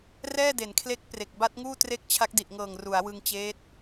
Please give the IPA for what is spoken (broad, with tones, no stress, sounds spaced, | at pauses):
r ɛː˥˩ d e˩˦ n kʰ l e˦˥ k̚ p r e˨˩ k̚ b a˦˥ t̚ ŋ uː˥˩ t r e˥˩ k̚ t͡ɕʰ a˦˥ k̚ d i˨˩ ʔ ŋ ɤː˨˩ ŋ r u˩˦ a̯ w ɯ˧ ŋ t͡ɕ eː˦˥ t̚